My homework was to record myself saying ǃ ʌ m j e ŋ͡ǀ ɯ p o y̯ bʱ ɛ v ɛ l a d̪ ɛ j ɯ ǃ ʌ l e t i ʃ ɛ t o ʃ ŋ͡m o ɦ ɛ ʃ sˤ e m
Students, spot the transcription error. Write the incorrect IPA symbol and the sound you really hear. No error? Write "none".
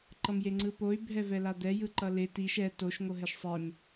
ŋ͡m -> ŋ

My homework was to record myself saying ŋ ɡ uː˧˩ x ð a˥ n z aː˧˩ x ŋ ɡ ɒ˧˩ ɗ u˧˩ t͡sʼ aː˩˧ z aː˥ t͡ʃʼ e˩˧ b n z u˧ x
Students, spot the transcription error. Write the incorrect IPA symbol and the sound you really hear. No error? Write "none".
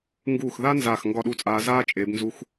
none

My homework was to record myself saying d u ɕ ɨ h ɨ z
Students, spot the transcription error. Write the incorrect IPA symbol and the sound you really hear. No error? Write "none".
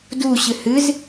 none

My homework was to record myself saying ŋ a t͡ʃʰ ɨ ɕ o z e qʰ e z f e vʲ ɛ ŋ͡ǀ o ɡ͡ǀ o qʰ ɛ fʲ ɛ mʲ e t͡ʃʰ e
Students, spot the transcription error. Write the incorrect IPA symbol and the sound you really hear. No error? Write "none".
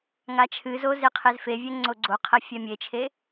ɕ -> z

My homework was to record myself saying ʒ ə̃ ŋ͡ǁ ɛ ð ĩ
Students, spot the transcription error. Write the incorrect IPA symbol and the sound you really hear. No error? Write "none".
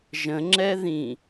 none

